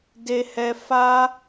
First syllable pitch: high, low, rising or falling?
high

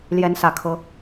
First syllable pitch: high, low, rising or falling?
rising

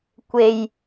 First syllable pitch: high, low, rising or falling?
low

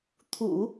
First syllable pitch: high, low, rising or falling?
low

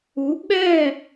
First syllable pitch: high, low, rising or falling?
rising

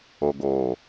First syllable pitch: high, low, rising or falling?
low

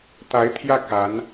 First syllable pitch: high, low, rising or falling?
rising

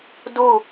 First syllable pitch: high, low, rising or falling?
falling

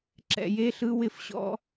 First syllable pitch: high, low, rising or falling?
low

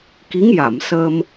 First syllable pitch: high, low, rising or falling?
rising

